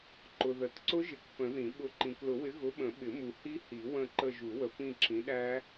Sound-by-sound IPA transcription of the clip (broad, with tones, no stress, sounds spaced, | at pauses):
ǃ ʊ˨ ð ə˨˩˦ t ǀ ʊ˦˥ ʒ ɪ˨˩˦ k p ə̃˨˩˦ ð ĩ˨˩˦ ɓ ʊ˨˥ ǃ ĩ˨ k l ʊ˨˩˦ w ɪ˨˥ ɣ ʊ˨˥ ɓ ə̃˨˩˦ ɓ ɪ˨˩˦ m u˨ h i˦˥ h i˨˩˦ w ə̃˦˨ ǃ ə˦˨ ʒ u˨˩˦ w ə˨˩˦ p ĩ˦˨ ǁ ĩ˨˥ ɗ æ˦˥